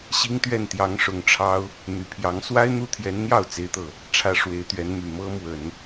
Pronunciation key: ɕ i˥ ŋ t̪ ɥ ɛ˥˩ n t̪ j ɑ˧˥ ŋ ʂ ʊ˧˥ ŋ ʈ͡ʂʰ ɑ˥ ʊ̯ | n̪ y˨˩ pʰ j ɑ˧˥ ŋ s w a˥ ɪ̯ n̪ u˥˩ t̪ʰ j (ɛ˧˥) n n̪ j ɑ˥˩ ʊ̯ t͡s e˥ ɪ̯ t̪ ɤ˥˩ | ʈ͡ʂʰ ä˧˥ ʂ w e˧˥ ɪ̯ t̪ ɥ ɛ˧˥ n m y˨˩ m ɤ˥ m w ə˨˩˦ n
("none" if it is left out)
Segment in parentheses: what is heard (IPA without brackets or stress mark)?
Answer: ɛ˧˥